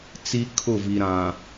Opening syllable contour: high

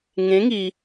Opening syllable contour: rising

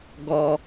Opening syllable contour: low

